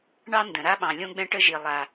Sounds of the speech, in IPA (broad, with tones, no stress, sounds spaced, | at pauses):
ɳ ɑ˥ n d ə̃˩ ɾ a˥ ɓ ɑ̃˩ lʲ õ˥ ɡ͡b ɛ̃˥ ʈ ə˥ ʒ i˩ lˠ a˩